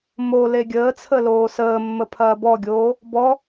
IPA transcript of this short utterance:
m o l e ɡʲ əː t͡sʰ ə l oː s əː mː ə pʰ ɐː b ɔ ɡʲ oː | b ɔ

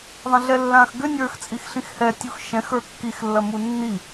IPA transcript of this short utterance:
ðˤ ɐ̃ ɮ ɛ lː ãː x ɡ ʏ nʲ ə˞ x t͡sʼ i x ɬ ĩ x h ɛ tʲ u x ʃ ɛ̃ x ə˞ kː i x lː ɐ m u nː i

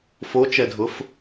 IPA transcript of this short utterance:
f o t͡ʃ ɛ dʱ ʊ f

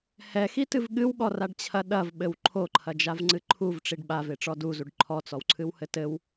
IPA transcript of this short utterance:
h ɛ x i t ɨ v ɠ ɨ w ɠ ɔ r a ɖ t͡ɕʰ ɐ ɗ ɐ v ɓ ɘ w ǃʰ o ǃʰ ɐ d͡ʒ a v ŋ͡ǀ ɨ ǃʰ u v ʈ͡ʂ i ɖ ɓ a v e ʈ͡ʂ ɔ d u z u ɖ ǃʰ ɔ t͡s ɔ w ǀʰ ɨ w h ɘ t ɘ w

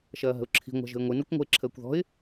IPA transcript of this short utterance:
ʃ ɐː ɦ ə̤ ʊ̯ ǁʰ i̤ ŋʷ a̤ ʒ ə̤ ɪ̯ ŋʷ ɨ n o kʷ ŋʷ ə̤ ɪ̯ ǁʰ əː kʷ ð ɔ̤ ɪ̯

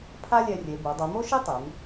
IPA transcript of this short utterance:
pʰ a˥ lʲ ɛ˧ rʲ e˩˧ b o˩˧ dˤ u˩˧ m o˥ ʃ i˥ tˤ e˩˧ m

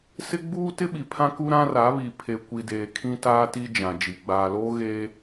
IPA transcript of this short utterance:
s ɪ˦ ɡ͡b uː˦ t ɪ˦ ɓ i˨ pʰ ã˦ k u˦ ɾ ã˦ r a˨˦ β i˨ pʰ e˨ kʷ i˨ d eː˨ kʰ ĩ˦ t aː˦ t i˦ d͡ʒ ã˨ d͡ʒ i˨ ɡ͡b aː˨ l oː˦ ɣ e˦

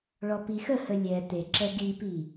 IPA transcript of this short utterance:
ɭ ɔ p i x ə h ə lʲ ɛ t̪ e ǁ ɛ ɡ i p i

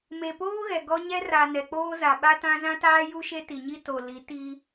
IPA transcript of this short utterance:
m e˨ p oː˦ ɣ ɛ˨ ɡ ɔ˦ ɲ ɛ˦ r a˨ n ɛ˨ k͡p oː˦ z a˨ ɓ a˦ t ã˦ z ã˦ t aː˦ j u˦ ʃ e˦ t i˨ ɲ i˦ t o˨ l i˨˦ t i˦

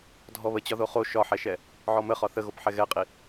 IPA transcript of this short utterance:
dʱ ɔ β ə t͡ɕ ɒ ð o χ o ʃ ɒ ħ ɛ ʃ ɛ | ʕ ɔ m ə χ ɒ θ ə ɣ o p ħ ɛ ɣ ɛ qʼ i

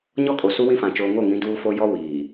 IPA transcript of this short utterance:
ɲ ɔ˦ kʼ o˨ s u˦ w ĩ˦ f ã˨ t͡ʃ oː˨ ŋ o˦˨ ŋ ĩ˨˦ d uː˦ f o˦ j ɔ˦ w iː˨

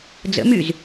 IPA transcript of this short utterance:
d͡z ə̰ m y z

